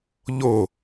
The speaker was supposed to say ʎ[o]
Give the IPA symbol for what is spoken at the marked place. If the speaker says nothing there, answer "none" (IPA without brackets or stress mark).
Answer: o